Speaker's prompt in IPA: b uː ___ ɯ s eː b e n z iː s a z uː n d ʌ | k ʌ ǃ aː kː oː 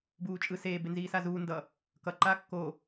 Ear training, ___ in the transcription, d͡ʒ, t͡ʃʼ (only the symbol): t͡ʃʼ